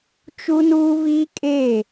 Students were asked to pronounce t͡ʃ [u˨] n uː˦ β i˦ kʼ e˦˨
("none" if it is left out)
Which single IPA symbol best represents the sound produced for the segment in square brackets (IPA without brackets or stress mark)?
u˦